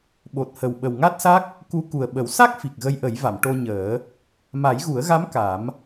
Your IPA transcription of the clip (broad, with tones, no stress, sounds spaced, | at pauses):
ɓ o˨˩ t̚ h ə˨˩ w ɓ ə˨˩ w ŋ a˦˥ t̚ s a˦˥ k̚ | k u˧˥ k u˨˩ ə̯ ɓ ə˨˩˦ w s a˦˥ k̚ f i˨˩ k̚ ɣ ə˧ j ʔ ə˨˩˦ j v a˨˩˨ m ʈ o˧ ɲ əː˨˩˦ | m a˨˩˦ j ɣ u˨˩˦ ə̯ ɣ a˧˥ m k a˨˩˦ m